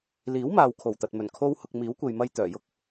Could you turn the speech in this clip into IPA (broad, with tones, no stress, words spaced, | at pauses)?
liː˨˥wmaː˨w kʰo˨˩wt̪ɐ˨t̚mɵ˨˩n kʰo˥whʊ˧k̚ miː˨˥wkʷe˨jmɐ˧j t̪œː˨˩jʊ˥k̚